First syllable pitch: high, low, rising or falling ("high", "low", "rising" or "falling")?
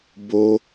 high